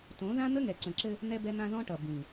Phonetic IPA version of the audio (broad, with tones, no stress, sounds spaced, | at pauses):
t õ˨˦ ð ã˦ n̪ ə˦ ŋ ɛ˨ ǀ ə̃˨ ǁ ɘ˦ | n̪ ɛ˦ b ɛ˦ n̪ ã˦ ð ɔ̃˦ ʈ ʌ˨ b ĩ˨